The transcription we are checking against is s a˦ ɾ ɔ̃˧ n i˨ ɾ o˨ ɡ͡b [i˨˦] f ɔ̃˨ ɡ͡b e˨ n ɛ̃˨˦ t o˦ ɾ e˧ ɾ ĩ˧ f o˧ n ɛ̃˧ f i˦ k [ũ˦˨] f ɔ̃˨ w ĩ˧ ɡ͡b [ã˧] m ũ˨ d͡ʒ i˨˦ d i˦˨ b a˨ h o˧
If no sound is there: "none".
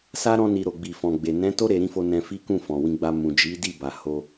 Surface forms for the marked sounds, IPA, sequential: i˨, ũ˦˨, a˧

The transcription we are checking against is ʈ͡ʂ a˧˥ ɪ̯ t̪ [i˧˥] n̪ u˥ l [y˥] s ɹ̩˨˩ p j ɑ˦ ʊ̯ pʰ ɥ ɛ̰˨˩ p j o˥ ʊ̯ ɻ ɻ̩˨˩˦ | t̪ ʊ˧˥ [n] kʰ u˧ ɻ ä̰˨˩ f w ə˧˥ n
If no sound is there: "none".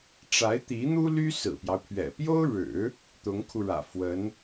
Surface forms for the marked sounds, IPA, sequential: i˧˥, y˥, ŋ

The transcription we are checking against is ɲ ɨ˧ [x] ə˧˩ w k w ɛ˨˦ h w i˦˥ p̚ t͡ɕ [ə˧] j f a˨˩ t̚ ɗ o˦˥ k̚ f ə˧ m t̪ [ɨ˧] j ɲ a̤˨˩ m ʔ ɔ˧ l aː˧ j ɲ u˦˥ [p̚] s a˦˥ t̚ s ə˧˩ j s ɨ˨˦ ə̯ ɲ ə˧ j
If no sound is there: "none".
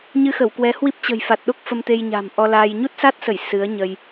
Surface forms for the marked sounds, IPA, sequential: x, ə̤˨˩, e˧, t̚

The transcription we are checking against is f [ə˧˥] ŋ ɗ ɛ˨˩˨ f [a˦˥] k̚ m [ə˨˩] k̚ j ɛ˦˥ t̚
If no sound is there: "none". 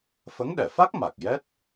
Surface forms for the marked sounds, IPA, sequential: ə˧˥, a˦˥, a˨˩

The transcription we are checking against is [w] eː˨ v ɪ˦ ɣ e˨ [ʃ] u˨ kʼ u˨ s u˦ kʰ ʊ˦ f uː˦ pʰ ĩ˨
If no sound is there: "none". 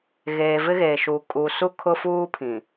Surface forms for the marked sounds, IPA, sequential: ɣ, ʃ

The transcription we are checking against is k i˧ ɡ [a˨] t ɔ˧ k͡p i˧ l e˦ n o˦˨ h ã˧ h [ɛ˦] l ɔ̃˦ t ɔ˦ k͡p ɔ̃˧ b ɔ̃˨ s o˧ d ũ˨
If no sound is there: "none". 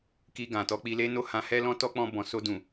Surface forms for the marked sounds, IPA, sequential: ã˨, ɛ˦

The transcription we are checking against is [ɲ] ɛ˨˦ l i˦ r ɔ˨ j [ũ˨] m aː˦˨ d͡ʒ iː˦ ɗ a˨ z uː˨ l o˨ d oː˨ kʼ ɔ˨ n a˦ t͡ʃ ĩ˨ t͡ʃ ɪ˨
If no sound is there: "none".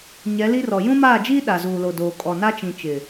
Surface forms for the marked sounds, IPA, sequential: ɲ, ũ˦

